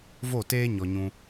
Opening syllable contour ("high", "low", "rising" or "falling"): falling